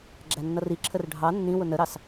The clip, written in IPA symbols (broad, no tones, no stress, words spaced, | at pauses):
ɡ͡ǁænːʌriǁʰər ɖʱɑ nːĩwʊ nəɾɑs